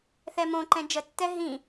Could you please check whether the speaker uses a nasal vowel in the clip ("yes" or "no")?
yes